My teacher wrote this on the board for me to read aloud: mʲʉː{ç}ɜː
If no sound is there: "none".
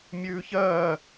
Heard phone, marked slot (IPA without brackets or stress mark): ç